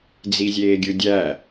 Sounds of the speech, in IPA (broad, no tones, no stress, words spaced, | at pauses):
d͡zizʲeːɡʲɯdʲæ